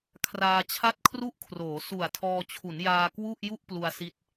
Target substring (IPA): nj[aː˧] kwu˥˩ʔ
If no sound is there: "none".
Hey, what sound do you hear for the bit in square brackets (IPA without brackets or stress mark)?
aː˧